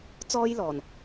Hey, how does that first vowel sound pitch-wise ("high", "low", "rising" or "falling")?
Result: high